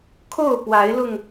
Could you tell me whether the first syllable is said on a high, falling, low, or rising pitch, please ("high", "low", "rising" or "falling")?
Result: falling